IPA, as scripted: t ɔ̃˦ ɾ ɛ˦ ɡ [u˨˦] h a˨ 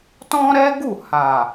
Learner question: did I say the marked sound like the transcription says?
no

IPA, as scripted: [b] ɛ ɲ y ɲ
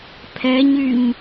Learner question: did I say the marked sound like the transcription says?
no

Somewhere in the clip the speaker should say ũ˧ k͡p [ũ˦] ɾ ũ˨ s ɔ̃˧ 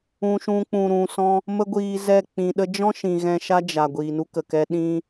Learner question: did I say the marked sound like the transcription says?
no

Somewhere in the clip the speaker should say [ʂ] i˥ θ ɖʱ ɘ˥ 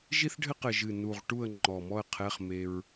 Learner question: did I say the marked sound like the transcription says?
no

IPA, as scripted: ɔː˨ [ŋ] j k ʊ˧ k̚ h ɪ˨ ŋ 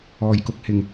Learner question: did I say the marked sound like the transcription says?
no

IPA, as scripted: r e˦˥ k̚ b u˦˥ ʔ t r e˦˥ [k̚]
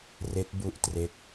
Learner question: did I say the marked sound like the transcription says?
yes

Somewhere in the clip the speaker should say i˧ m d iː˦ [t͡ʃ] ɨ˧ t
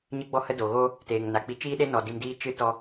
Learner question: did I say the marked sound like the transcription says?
yes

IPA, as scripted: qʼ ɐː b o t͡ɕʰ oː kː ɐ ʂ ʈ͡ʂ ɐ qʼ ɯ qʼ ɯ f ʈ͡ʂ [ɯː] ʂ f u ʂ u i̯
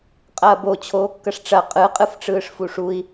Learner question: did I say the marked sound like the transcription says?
yes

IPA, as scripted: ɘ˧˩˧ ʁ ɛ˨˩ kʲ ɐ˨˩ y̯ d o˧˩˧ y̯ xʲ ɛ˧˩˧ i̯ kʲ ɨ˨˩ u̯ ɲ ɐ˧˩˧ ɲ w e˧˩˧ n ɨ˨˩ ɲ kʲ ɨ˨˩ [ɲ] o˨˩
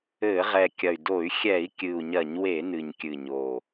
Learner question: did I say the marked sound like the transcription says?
yes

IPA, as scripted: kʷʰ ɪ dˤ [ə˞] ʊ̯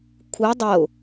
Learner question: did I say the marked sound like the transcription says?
no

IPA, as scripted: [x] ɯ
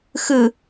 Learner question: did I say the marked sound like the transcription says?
yes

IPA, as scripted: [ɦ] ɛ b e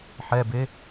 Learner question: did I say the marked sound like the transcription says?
no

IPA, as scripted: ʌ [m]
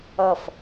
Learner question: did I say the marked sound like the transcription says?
no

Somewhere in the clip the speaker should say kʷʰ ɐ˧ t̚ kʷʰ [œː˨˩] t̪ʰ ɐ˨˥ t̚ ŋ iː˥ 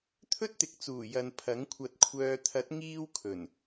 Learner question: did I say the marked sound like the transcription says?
no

